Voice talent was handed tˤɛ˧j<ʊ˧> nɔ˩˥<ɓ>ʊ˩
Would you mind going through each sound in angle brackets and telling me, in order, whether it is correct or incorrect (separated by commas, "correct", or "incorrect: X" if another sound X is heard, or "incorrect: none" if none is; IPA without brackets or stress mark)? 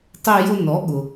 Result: correct, incorrect: ɠ